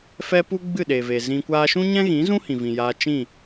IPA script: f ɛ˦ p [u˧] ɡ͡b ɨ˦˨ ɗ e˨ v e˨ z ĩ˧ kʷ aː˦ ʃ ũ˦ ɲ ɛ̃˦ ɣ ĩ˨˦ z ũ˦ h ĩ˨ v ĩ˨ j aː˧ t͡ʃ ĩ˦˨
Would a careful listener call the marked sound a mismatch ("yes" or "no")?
yes